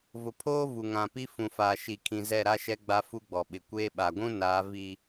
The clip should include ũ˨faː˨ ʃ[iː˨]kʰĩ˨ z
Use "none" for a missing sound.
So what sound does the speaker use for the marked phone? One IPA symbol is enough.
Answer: i˨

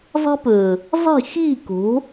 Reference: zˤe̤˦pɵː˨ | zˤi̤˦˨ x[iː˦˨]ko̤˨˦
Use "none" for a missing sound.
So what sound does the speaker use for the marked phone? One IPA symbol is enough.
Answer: iː˦˨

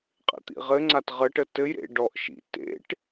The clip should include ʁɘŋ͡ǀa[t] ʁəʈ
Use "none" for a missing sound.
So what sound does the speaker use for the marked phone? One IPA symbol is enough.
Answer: t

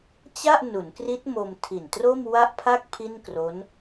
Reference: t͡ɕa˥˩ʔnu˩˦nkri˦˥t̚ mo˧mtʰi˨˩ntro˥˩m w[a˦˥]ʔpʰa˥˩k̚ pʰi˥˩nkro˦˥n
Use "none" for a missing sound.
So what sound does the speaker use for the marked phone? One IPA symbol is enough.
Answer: a˥˩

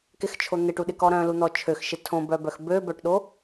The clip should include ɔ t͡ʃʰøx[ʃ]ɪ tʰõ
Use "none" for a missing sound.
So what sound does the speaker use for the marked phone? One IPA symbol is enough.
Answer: ʃ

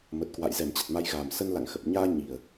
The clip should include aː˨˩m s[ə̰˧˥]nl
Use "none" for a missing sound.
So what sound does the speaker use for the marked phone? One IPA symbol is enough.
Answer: ə˧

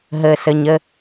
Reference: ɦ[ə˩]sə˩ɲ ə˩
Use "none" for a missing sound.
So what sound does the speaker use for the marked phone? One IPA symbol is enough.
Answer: ə˩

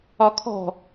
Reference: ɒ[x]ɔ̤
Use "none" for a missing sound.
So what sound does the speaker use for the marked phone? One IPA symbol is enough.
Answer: kʰ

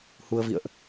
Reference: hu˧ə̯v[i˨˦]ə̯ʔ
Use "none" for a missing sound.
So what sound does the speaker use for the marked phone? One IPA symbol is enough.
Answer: ḭ˧˨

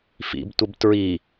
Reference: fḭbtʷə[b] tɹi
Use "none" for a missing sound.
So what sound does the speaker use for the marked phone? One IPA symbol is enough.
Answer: b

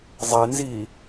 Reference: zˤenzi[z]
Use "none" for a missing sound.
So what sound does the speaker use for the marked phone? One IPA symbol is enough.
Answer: none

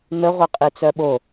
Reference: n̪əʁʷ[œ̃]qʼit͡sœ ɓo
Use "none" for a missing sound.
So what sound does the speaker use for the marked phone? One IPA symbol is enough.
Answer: œ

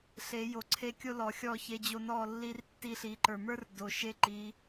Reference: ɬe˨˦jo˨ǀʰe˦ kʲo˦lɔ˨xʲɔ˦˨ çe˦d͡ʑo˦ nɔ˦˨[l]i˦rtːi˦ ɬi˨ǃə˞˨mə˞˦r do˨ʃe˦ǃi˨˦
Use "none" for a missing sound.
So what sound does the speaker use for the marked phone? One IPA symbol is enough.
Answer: lː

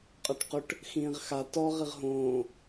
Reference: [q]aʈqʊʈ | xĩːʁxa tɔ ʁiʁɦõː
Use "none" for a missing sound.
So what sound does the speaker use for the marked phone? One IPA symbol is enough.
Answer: qʼ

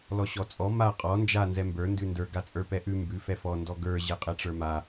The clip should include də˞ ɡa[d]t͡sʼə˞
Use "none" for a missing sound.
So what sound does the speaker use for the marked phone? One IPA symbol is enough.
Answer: none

